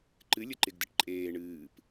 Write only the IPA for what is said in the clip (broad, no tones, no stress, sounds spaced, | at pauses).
ǃ ɨ lʲ ə ǃ ɪ ɡ d ə ʈ ǃʼ eː ɳ ɨː p